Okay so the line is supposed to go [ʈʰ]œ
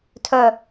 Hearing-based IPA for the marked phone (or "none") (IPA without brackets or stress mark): tʰ